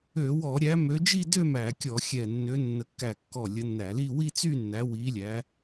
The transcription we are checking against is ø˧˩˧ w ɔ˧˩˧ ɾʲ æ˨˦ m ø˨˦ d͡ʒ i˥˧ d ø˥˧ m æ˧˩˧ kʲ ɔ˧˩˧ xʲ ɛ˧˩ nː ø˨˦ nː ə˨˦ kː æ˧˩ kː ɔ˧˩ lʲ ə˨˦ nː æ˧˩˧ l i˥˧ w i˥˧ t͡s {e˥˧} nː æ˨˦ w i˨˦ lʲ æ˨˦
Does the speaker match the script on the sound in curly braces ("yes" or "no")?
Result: no